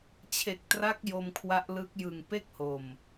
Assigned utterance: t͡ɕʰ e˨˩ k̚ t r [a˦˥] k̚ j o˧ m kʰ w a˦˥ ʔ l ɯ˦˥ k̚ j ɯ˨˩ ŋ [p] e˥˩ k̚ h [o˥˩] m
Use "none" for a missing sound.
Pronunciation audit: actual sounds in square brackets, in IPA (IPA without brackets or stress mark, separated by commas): a˦˥, p, o˨˩